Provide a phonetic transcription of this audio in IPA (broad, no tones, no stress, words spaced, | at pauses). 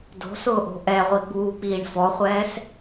do̤sʊːʔo̤ ʔɛʁʷiɡ͡buːk͡piːɳ fɔχʷɛːs